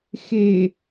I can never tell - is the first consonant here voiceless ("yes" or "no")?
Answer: yes